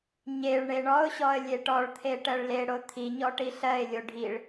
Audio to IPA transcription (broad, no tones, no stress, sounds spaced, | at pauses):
ɲ e ɭ ɳ e ɳ ɔ ʊ̯ ɕ ɔ ə̯ lʲ e ʈ ɔ ɭ t̪ʰ e ʈ ɜ ɭ l e ɽ o t̪ʰ i ɲ ɔ ʈ i ɬ ɜ ɪ̯ lʲ o ɖʱ i ɭ